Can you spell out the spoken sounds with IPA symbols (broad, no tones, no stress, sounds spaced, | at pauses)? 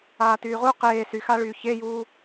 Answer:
aː t yː ʁ u q eː s y x a ɭ yː ç e j uː